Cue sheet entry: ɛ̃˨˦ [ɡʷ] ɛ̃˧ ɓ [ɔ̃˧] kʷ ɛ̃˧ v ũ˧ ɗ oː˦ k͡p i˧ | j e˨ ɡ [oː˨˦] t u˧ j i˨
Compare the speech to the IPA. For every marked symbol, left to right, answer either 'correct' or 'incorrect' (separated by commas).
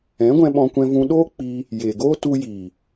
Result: correct, correct, incorrect